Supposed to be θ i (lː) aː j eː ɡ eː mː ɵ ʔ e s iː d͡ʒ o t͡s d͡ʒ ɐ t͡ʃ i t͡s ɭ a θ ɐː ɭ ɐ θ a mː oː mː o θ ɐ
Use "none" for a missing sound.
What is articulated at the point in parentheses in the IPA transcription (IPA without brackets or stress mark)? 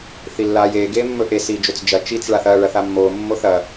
lː